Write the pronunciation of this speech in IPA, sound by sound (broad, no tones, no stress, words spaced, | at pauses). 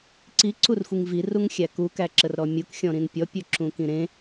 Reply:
ǀiǀurxʷiŋ viruŋxʲæ kukæǁərɾɔ mʲuk xʲɔ̃ɾĩnpʲɔpʲɵ ǁũkĩɾẽ